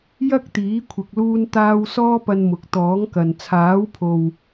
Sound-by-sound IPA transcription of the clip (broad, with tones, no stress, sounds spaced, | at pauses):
j ɐ˥ k̚ t̪ iː˨˥ kʷʰ ɪ˨ k̚ l uː˧ n t̪ aː˧ w s ɔː˥ p ɐ˧ n m ʊ˨ k̚ t̪ ɔː˨˥ ŋ k ɐ˨ n t͡sʰ aː˨˥ w pʰ o˨ w